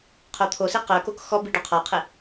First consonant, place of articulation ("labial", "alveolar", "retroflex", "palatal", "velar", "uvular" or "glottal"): uvular